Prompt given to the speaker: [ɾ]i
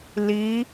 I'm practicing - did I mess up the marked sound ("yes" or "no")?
yes